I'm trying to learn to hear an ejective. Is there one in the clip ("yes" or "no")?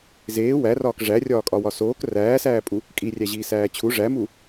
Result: yes